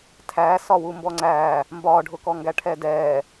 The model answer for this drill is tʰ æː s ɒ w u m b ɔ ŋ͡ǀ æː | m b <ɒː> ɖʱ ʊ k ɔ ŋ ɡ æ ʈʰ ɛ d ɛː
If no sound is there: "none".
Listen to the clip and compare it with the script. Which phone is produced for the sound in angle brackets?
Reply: ɒː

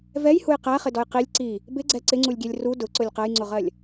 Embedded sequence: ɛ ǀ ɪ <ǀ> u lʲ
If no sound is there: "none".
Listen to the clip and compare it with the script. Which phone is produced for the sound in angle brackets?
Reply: ŋ͡ǀ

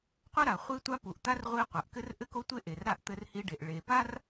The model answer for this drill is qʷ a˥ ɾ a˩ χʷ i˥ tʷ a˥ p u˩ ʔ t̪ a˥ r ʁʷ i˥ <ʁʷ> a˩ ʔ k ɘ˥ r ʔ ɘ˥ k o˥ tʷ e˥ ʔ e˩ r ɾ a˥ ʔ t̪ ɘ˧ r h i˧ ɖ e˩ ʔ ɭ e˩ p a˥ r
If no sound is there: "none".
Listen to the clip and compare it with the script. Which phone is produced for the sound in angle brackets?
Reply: qʷ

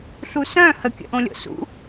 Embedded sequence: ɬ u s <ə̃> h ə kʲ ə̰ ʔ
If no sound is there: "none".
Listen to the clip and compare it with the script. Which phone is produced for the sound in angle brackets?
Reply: œ̃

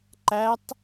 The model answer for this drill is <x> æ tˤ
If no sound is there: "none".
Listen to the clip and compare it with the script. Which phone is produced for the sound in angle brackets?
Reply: ǃ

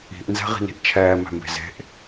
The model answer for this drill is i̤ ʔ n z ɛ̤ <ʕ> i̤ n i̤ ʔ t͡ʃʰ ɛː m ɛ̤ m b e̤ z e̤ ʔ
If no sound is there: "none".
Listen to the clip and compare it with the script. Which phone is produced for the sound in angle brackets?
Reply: ʁ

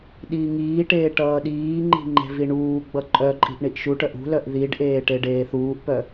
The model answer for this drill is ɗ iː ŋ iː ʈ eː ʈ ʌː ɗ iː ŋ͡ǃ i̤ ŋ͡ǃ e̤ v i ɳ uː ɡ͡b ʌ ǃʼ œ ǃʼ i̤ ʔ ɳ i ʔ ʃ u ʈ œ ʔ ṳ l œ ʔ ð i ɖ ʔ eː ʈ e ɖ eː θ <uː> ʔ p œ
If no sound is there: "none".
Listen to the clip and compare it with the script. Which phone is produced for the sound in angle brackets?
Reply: uː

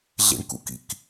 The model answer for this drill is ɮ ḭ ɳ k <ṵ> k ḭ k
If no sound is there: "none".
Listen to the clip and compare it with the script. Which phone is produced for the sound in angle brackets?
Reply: ṵ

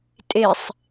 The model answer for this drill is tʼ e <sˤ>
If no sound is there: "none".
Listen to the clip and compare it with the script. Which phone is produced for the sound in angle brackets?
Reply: sˤ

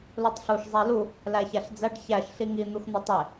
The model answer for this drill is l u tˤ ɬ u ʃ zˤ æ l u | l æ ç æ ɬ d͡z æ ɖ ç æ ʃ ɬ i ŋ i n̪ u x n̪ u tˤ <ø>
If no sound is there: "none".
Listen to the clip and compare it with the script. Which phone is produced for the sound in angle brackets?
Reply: e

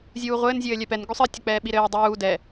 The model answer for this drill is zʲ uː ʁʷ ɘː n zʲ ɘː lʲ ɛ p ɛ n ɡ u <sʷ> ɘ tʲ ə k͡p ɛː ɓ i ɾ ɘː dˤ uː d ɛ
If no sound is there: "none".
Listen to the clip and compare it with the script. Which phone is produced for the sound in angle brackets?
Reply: sˤ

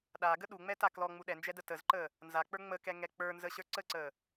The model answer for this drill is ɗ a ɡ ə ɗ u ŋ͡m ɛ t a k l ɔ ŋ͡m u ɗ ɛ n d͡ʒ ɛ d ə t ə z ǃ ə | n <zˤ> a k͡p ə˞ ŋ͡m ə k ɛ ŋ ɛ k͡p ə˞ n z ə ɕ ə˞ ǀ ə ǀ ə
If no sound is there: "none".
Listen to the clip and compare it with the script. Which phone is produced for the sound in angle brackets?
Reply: z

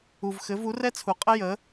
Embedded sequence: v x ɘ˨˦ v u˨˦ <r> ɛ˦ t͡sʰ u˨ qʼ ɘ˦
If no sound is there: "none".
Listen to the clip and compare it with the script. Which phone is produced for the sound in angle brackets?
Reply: r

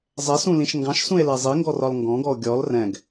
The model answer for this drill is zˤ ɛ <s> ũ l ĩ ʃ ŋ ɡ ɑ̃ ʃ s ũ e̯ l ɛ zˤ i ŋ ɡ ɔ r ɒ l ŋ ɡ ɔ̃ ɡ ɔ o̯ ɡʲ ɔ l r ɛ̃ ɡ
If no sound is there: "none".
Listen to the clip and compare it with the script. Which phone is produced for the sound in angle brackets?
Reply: s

